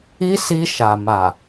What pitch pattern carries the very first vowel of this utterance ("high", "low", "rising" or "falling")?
high